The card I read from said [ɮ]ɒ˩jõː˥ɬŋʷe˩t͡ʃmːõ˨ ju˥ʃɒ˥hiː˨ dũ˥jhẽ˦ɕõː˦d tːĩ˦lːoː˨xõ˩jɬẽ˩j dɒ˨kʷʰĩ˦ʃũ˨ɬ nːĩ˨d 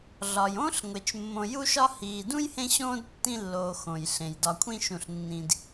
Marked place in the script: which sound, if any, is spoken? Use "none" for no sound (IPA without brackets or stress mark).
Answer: ɮ